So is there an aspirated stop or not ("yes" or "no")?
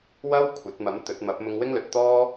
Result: yes